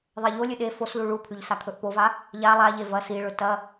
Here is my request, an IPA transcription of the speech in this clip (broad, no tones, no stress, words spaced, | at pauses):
ðˤeʎolʲɨ ɗe foslu ɭupʰʉʎ sakʰɵʔpova | ʎa lˠaʎe vɐ siɭɵ tɐ